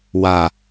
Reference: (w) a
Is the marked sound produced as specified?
yes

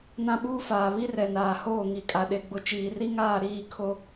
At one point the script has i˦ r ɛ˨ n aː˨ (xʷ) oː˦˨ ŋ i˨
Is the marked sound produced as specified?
no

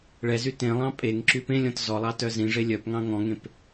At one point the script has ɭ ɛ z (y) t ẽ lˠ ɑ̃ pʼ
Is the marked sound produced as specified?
yes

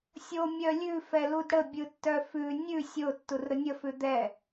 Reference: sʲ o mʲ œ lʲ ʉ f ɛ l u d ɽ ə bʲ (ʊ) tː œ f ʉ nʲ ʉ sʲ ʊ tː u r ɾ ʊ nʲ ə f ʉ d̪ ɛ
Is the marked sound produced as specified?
no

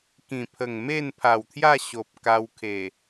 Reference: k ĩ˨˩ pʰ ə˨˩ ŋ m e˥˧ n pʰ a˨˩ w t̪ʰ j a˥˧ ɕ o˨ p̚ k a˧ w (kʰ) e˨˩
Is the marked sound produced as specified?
yes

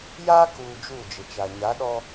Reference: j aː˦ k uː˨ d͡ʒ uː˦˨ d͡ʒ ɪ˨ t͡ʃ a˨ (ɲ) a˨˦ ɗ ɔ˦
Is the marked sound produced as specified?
yes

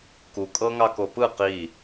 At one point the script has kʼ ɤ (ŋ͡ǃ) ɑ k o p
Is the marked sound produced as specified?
no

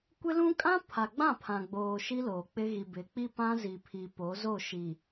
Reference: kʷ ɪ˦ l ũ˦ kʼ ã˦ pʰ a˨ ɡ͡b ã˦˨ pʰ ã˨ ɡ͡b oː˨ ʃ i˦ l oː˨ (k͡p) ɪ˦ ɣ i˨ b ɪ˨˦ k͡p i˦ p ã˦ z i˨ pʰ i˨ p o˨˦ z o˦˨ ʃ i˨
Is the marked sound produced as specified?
yes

